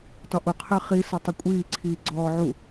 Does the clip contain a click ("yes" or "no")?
yes